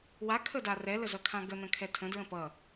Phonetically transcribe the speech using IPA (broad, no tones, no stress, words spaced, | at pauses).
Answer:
wakʰəda rɛləzʌkʰã ɡən̪ə̃kʰɛ tʰə̃dɹə̃ pʌ